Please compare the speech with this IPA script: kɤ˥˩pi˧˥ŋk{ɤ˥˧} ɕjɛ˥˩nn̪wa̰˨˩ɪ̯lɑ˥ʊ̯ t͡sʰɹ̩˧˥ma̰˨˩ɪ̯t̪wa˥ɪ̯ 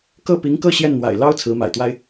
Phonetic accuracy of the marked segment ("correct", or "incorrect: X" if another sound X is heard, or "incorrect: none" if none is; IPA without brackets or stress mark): correct